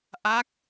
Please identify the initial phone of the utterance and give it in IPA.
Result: ʔ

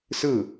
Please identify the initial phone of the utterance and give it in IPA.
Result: s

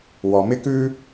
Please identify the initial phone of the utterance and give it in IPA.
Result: w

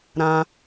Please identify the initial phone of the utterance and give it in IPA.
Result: ɾ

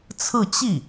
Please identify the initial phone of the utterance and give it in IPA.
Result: t͡sʰ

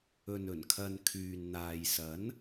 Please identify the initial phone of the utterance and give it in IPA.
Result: ɵ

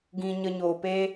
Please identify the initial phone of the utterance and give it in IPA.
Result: ɡ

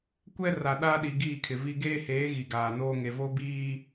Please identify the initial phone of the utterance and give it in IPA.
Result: kʷ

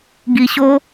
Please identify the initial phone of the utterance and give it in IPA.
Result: ɡ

